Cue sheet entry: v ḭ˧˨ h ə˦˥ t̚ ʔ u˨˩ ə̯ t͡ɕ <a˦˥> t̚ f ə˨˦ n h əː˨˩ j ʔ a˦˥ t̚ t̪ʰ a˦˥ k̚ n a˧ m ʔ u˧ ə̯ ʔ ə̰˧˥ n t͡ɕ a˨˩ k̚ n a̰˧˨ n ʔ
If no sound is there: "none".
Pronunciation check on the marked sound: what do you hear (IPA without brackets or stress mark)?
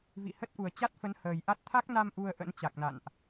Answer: a˦˥